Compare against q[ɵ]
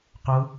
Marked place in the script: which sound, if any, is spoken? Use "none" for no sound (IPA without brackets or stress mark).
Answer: ʊ